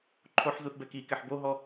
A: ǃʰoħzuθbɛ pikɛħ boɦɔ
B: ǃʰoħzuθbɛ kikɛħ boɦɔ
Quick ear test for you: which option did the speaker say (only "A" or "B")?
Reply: B